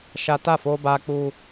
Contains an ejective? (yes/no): no